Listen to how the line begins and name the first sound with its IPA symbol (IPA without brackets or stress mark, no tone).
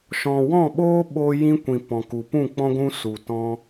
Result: ʃ